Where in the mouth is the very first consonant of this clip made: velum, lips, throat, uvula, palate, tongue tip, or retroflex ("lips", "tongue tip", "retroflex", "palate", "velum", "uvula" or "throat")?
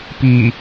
lips